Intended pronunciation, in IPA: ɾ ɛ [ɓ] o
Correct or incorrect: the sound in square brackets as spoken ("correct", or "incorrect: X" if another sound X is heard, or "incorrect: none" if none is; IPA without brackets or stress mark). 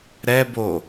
incorrect: b